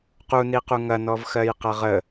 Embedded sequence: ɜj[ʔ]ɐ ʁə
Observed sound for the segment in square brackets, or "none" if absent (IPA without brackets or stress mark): q